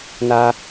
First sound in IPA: n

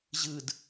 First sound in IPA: ʑ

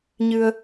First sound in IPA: ɲ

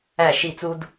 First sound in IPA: æ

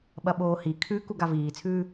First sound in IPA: ɓ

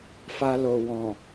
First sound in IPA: f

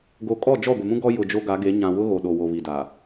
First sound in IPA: ɡ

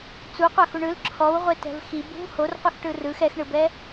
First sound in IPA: t͡s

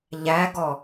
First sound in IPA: ʎ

